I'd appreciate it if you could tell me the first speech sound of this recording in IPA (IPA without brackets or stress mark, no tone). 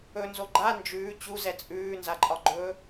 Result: ɵ